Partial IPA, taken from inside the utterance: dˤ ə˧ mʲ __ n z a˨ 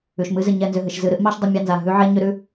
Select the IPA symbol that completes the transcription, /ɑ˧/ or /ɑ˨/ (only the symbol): ɑ˧